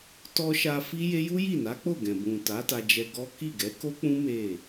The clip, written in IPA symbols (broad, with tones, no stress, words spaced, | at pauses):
tɔ˧ʃa˧ fi˦je˦ ju˦ji˦˨na˨˦k͡po˦˨ ɡɛ̃˨bũ˨ ta˨˦ta˧d͡ʒɛ˧ ɡɔ˦ ki˦˨ɡɛ˨˦ ko˦k͡pũ˦ me˦˨